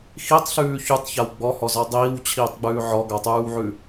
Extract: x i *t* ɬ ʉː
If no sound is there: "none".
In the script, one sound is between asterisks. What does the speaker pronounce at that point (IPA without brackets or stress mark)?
tˤ